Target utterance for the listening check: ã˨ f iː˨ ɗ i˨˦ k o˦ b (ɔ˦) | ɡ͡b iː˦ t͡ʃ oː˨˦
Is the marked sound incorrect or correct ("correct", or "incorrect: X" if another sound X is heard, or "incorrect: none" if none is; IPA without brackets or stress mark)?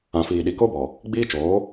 incorrect: ɔ˨